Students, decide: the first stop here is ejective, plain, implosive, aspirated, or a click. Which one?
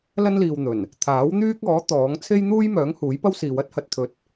aspirated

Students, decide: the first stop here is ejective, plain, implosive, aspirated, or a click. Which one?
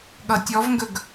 implosive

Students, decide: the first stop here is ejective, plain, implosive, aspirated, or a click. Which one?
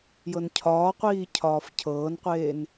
aspirated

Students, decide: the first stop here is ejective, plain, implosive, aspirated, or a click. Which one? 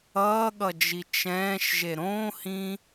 implosive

